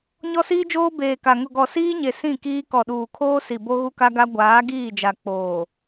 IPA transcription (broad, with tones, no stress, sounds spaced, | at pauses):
ɲ ɔ˦ s iː˦ d͡ʒ oː˦ b eː˨ k a˨ ŋ ʊ˨ ɡ ɔ˨ s iː˦ ɲ e˨ s ĩ˦˨ k iː˦ k ɔ˨ ɗ uː˨ kʰ oː˦ s i˨ b o˦ ɣ u˦ k a˦ ɡ a˦ ɡʷ aː˨˦ ɡ iː˦˨ d͡ʒ a˨ k͡p oː˨